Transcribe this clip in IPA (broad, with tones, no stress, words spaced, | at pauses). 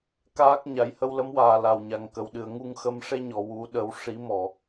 kaː˦˥k̚ɲa˨˩˦j hə˧wlə˧˥mwaː˨˩ la˨˩wɲa˨˩ŋ kə˨˩˨wɗɨ˨˩˨ə̯ŋu˧ŋxə˧m ʂe˧ɲɔ˨˩˨ wu˨˩˦ ɗə˨˩˦w ʂi˨˩˦mɔ˨˩˨